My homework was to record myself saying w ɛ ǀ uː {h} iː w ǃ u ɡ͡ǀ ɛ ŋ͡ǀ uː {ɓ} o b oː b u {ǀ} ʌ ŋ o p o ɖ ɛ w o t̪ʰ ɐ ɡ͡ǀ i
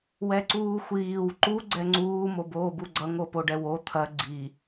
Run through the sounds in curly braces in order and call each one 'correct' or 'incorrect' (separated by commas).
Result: incorrect, incorrect, incorrect